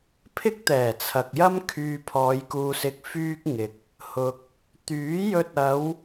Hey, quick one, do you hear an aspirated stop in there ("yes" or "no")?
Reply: yes